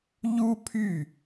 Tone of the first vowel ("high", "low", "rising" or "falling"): high